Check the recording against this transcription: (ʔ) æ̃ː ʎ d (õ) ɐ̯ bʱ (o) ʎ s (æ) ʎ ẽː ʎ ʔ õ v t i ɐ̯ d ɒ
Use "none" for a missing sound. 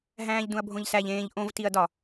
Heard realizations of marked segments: ɦ, ũ, õ, æ

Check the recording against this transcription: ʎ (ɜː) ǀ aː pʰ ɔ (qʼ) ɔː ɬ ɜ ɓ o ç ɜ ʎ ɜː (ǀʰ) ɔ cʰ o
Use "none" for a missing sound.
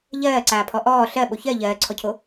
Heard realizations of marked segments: ɜː, ʔ, ǀʰ

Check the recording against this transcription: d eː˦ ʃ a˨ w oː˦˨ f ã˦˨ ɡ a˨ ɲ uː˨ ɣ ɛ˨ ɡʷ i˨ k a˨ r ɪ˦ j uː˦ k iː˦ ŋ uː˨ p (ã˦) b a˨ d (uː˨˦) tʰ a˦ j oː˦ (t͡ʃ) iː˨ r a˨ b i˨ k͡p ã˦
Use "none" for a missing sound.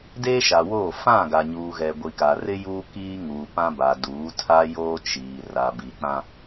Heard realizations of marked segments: ã˦, uː˨˦, t͡ʃ

